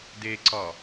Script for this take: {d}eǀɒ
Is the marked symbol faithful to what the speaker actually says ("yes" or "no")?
yes